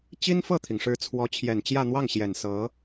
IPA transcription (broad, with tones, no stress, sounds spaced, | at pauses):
t͡ɕ i˥ n f ɤ˥˩ t̪ʰ i˩ ŋ ʂ ɻ̩˧˥ t͡sʰ w ɔ˧˥ t͡ɕʰ j ɛ˨˩ n t͡ɕ j ä˥˧ n̪ w ɑ˥˩ ŋ ɕ j ɛ˨˩ n s ɤ˧˥